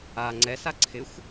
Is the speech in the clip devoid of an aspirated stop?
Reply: no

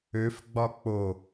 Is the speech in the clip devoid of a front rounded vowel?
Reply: no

